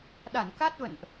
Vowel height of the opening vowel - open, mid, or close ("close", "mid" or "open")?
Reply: open